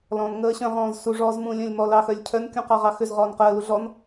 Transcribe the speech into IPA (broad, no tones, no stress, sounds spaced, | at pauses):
l ɔ̃ n ŋ əː ɕ œ̃ ʁ ɔ̃ː z s u ʐ ɔː z m ũ lʲ œ̃ lʲ m ɔ l ɑ x œ lʲ cʰ œ n kʲ ũ q ɑ ʁ ɑ x ʏ z ʁ ɔː n q əː l u ɮ ɔ n